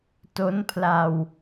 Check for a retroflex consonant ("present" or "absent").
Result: absent